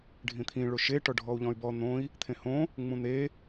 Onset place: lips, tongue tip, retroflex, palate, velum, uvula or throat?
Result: retroflex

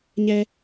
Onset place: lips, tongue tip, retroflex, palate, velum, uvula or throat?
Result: palate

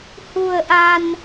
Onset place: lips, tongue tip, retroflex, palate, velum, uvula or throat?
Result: throat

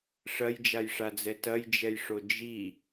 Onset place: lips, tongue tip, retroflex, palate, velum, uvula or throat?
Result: retroflex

